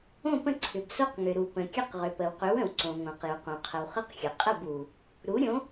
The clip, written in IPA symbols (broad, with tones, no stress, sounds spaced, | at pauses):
õ˥˨ p ə̃˥˨ ǀʰ ʏ˩ b s o˦ q ŋ ʏ˩ ɾ u˩ p ə̃˩ kʲ ə˦ q ʁ ʏ˩ p ə˩ w q ʏ˨˥ w ə̃˩ w ǀ õ˩ ŋ õ˩ q j u˩ q õ˩ qʰ ə˩ w χ ə˥˨ q xʲ ə˩ qʼ ə˥˨ b u˩ | ɾ u˨˥ ɾʲ õ˨˥